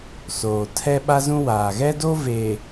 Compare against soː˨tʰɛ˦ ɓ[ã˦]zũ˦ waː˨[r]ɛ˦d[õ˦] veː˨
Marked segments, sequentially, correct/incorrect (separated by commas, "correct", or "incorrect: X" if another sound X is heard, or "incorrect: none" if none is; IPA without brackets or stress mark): incorrect: a˦, incorrect: ɣ, incorrect: o˦